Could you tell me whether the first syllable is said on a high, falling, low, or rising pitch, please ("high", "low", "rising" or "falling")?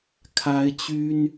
high